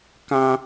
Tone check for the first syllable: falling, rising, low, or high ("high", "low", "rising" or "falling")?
high